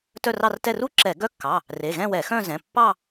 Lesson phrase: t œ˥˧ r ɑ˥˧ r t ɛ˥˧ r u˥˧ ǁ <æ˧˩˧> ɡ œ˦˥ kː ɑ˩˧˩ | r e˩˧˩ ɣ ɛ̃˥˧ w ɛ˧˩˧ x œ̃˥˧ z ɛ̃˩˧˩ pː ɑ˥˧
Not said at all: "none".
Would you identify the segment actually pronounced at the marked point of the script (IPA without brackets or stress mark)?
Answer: ɛ˧˩˧